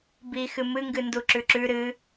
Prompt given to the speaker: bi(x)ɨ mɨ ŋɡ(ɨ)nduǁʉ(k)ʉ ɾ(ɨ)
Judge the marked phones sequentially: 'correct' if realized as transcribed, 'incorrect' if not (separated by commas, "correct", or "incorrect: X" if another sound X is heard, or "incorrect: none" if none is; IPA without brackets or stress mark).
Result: correct, correct, incorrect: ǁ, correct